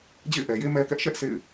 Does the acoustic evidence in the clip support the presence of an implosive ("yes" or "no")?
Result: no